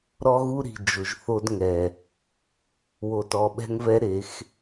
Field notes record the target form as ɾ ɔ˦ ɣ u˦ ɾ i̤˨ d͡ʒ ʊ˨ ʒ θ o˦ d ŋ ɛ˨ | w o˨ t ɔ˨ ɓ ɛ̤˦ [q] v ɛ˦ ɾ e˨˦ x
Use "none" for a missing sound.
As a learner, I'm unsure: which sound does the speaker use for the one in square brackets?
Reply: ŋ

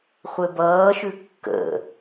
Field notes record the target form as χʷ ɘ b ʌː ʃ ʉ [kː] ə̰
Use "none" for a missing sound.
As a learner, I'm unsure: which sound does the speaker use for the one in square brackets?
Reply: kː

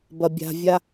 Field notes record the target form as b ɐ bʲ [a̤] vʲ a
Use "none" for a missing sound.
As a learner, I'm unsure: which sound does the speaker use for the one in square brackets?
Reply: a̤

